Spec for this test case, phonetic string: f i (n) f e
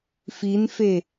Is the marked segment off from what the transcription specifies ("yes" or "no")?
no